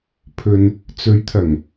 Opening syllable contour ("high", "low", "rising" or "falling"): low